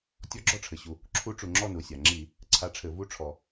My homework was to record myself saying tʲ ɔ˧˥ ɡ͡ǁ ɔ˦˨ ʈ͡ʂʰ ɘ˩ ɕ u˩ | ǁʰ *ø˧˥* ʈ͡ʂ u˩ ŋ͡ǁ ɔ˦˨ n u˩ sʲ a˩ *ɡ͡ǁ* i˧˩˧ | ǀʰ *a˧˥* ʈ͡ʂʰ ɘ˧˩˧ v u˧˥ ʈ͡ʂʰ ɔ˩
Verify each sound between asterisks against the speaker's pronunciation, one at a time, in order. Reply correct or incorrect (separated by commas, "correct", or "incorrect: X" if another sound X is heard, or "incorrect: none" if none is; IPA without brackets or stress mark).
incorrect: u˧˥, incorrect: ŋ͡ǁ, correct